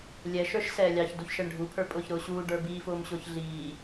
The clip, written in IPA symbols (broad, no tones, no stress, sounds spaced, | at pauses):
lʲ ɛ ʃ ə˞ ʃ s ɛː lʲ ɑ ç d u ç ʃ ɛ ɳ ɖʱ u pʰ ə˞ pʼ ʊː ç ɾ ʊː ɕ uː ɖ ə˞ b iː f ʊː m ɕ ʊː ç ɮ iː